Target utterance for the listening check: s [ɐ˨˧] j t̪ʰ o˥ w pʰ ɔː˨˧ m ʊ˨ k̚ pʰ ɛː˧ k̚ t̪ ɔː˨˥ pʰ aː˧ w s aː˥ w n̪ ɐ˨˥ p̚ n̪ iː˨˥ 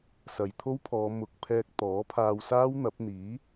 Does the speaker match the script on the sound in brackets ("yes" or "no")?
yes